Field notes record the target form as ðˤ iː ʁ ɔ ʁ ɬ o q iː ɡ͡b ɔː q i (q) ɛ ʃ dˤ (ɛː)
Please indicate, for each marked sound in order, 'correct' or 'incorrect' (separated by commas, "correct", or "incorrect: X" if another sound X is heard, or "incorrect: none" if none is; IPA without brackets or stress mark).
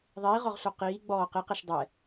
correct, incorrect: ɛ